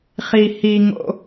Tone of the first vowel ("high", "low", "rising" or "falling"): high